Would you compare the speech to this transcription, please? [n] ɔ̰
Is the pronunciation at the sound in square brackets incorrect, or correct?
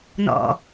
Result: correct